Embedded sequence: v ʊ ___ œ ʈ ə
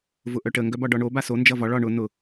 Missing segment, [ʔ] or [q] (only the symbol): ʔ